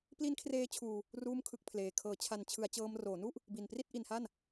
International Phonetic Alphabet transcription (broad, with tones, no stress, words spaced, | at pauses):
pli˦˥nkʰreː˦˥ t͡ɕʰuː˧ | ruː˥˩mkʰɯ˥˩k̚pʰleː˨˩ kʰɤː˩˦t͡ɕʰa˨˩nt͡ɕʰɯ˩˦a̯t͡ɕɤː˧m roː˩˦nu˥˩ʔ | bi˨˩npri˥˩t̚ʔi˧nha˥˩n